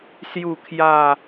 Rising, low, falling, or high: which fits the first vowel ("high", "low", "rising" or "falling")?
falling